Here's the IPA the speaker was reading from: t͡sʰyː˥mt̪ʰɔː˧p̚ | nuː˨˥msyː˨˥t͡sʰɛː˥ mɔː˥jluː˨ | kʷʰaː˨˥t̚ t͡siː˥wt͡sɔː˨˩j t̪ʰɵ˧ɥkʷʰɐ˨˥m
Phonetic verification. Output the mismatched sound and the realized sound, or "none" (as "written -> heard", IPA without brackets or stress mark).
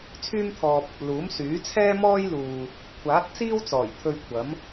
n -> l